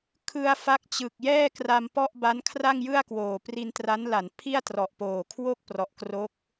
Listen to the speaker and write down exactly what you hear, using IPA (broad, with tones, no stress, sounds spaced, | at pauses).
kʰ ɯ˧ a̯ f a˦˥ k̚ t͡ɕ ɯ˨˩ k̚ j ɛː˥˩ k r a˧ m p ɔ˥˩ ʔ b a˦˥ n kʰ r a˥˩ ŋ j ɯ˥˩ a̯ k w oː˨˩ p r i˧ n t r a˦˥ n l a˩˦ n pʰ i˥˩ a̯ t r ɔ˨˩ ʔ p oː˨˩ kʰ w o˥˩ k̚ p r ɔ˨˩ ʔ k r o˦˥ k̚